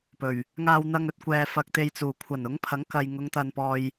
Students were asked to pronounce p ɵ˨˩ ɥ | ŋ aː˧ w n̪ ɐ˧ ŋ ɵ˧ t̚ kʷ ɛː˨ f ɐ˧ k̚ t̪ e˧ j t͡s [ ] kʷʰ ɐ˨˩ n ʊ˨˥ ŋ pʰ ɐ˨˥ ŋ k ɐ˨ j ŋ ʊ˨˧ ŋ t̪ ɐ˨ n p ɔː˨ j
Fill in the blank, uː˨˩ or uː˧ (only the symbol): uː˨˩